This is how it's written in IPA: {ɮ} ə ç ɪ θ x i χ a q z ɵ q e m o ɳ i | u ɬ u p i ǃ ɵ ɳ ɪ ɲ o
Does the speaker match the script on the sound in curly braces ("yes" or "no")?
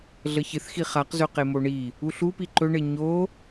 yes